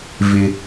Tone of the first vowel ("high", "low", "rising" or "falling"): low